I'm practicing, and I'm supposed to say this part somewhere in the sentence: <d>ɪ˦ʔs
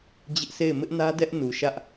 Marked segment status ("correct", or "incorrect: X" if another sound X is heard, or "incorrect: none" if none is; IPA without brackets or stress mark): incorrect: d͡ʑ